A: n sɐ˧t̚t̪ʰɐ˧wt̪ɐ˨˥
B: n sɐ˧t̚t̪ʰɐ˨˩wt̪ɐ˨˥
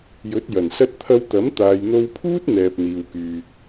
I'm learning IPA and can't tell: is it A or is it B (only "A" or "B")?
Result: A